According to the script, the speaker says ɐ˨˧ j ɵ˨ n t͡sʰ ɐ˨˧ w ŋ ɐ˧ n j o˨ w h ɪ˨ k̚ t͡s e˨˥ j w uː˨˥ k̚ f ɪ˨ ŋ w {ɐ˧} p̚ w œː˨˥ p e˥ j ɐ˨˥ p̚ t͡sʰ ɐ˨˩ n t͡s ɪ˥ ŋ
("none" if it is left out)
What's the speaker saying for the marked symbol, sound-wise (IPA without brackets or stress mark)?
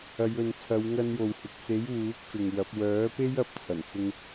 ɐ˨˥